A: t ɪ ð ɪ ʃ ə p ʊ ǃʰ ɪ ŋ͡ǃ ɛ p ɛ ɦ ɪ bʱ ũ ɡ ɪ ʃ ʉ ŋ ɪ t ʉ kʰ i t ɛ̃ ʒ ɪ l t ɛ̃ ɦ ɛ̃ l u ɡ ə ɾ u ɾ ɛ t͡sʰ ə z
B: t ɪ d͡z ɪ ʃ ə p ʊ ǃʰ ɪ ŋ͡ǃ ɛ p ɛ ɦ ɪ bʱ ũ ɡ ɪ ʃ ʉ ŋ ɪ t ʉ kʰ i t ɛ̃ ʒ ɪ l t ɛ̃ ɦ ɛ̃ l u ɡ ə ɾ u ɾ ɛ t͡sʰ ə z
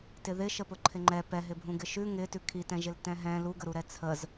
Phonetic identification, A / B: A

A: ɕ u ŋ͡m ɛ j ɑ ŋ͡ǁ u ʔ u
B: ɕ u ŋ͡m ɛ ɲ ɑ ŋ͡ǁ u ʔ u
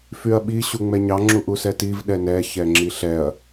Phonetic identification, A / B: B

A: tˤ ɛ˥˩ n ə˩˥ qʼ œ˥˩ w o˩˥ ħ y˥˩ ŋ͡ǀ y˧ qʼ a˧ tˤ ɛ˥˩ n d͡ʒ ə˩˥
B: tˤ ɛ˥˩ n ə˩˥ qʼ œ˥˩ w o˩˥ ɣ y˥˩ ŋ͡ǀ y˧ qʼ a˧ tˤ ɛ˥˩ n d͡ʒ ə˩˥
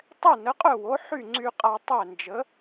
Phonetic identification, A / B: A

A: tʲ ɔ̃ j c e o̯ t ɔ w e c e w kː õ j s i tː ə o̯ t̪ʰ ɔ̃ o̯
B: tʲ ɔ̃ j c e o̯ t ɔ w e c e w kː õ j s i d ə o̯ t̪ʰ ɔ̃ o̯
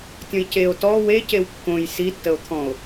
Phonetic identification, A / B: A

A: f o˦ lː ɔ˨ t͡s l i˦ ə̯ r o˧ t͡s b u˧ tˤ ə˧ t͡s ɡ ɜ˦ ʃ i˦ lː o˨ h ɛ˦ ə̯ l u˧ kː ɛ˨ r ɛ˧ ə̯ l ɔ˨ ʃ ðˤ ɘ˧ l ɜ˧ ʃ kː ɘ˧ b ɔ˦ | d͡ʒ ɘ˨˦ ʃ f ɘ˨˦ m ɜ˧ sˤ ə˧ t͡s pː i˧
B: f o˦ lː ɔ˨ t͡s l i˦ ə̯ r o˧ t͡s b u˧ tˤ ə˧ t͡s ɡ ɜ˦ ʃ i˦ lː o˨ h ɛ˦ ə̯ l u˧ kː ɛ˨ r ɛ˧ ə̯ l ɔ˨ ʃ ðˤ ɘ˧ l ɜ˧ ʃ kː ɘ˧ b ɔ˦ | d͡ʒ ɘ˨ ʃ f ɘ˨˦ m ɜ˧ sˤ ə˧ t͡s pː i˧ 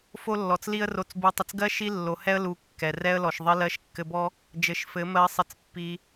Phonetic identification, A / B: A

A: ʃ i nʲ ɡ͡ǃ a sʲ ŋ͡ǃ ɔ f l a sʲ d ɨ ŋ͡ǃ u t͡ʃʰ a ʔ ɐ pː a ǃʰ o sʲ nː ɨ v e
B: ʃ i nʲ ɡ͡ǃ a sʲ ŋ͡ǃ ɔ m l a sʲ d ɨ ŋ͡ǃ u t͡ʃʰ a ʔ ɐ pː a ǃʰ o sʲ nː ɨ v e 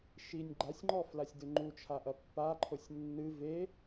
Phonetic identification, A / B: A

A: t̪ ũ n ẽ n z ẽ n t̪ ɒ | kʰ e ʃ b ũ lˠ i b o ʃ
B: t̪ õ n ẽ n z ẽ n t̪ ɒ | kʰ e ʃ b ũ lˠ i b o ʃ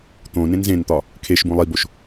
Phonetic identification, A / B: B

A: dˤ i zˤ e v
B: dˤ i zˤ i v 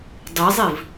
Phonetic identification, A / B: B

